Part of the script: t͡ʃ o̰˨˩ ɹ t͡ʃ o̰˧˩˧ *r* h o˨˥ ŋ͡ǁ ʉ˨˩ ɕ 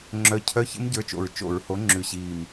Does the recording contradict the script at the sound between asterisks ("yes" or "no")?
yes